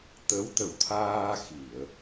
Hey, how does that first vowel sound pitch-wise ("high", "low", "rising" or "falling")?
rising